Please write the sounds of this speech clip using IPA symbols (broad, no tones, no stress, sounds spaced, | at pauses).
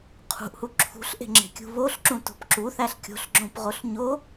qʰ ṳ ʔ h u ǁʰ ṳ ɬ ʔ e̤ ŋ͡ǁ e̤ kʲ ṳ β o ɬ ǁ ũ t o̤ p ǁ u θ æ ɬ kʲ o̤ ɬ ɡ͡ǁ õ p ʁ o ɬ ɲ o